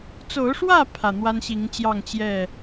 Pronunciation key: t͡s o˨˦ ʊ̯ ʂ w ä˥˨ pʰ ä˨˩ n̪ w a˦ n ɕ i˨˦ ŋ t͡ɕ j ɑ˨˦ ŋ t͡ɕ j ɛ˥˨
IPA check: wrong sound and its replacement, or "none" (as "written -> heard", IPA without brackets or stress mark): ɑ˨˦ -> ɑ˥˨